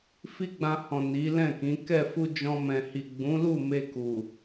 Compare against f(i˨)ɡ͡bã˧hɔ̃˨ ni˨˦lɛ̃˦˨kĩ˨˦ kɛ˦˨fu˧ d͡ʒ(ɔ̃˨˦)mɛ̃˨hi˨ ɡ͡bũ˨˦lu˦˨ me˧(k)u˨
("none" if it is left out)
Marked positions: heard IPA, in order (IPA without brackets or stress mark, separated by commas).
i˦, ɔ̃˧, k